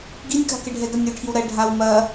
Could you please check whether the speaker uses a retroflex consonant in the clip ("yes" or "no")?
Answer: yes